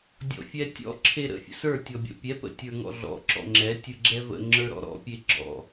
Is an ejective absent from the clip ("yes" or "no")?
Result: yes